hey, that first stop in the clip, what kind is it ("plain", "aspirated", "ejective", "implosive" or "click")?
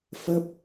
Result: plain